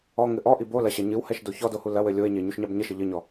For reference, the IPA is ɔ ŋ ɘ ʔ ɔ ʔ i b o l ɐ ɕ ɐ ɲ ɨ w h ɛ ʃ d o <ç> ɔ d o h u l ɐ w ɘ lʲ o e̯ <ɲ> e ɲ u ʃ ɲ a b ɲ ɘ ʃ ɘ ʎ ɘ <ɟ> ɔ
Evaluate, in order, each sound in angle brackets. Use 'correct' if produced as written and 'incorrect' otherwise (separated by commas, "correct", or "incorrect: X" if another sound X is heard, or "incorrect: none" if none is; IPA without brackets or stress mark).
correct, correct, incorrect: ɲ